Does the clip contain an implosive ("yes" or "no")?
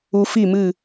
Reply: no